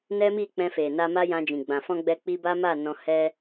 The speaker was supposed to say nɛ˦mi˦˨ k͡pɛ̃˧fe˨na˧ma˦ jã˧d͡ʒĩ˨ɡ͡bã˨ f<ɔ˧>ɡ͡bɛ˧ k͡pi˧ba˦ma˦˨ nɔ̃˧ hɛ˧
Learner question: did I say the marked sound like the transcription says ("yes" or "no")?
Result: no